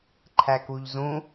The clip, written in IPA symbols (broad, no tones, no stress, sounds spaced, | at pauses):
ǃʰ æ k u ʎ z ũ